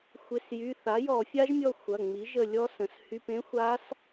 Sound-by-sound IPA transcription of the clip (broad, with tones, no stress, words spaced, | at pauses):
xʷɪ˩˧˩sjy˩˧˩ θa˩˥jɔ˧˩˧fʲa˦˥ʒmʲɔ˦˨ xʷɐ˩˧˩ ŋ͡mi˩˥ʒə˦˨lʲɔ˦˥ sə̃˩˧˩shy˧˥˧p ẽ˦˥xʷa˦˥s